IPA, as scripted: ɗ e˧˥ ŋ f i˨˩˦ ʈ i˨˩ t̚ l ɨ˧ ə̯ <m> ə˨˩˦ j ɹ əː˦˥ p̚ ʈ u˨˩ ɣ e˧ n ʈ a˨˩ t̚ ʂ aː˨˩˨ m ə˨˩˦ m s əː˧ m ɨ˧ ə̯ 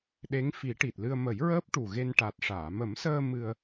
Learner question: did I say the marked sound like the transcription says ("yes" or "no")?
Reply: yes